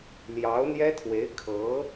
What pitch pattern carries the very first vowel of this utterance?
rising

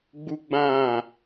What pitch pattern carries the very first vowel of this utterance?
high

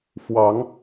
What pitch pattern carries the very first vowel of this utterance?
rising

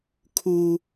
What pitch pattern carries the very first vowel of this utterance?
high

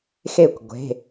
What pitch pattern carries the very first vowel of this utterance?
falling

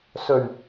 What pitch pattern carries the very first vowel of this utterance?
low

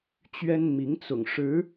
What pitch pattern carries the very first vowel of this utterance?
high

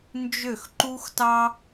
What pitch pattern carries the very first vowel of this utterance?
falling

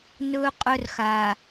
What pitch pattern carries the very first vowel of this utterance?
high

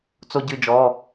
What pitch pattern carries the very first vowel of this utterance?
high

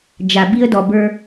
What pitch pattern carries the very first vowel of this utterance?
low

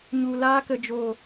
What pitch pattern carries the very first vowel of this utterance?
low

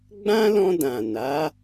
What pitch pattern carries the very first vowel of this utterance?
high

